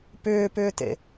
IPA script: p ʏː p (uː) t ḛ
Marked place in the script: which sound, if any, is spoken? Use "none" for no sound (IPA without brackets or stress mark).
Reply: ʏː